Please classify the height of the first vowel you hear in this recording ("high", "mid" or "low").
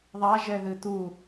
low